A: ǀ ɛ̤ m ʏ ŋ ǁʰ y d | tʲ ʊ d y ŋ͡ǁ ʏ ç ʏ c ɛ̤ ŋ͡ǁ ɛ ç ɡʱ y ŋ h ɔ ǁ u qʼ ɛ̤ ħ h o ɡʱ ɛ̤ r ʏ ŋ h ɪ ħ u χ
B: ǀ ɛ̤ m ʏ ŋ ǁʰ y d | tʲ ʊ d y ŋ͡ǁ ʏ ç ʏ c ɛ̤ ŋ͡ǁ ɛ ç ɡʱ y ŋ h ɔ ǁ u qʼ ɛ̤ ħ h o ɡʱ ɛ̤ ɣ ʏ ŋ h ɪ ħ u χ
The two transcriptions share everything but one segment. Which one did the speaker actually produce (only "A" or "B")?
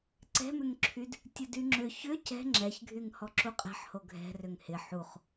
A